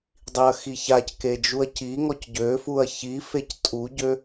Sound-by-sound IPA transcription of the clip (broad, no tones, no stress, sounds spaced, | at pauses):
dˤ i ɐ̯ x i ç a c k e d͡ʒ u ɐ̯ c i ŋ ɔ c ɟ ø f u ɐ̯ ç i f e c tʼ u ɟ ø